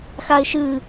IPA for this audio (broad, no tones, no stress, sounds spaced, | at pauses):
x a ɪ̯ ʃ ɨ